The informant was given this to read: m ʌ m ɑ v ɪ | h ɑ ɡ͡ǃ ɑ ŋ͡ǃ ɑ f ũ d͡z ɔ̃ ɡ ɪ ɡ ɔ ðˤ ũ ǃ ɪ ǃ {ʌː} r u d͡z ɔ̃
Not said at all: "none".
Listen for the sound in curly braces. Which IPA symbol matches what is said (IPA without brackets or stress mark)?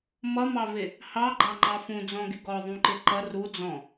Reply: ʌ